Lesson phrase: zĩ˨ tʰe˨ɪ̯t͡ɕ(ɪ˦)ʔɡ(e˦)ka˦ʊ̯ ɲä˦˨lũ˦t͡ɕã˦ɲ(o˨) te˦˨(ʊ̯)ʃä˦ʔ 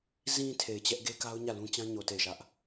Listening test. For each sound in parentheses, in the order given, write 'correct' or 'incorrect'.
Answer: incorrect: ɛ˦, correct, correct, incorrect: ɪ̯

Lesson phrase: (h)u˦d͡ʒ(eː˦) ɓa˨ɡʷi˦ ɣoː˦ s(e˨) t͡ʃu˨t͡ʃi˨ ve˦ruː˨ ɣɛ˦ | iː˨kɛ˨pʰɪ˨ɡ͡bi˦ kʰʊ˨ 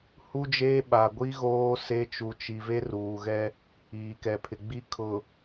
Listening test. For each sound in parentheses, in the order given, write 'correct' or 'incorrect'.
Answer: correct, correct, incorrect: e˦

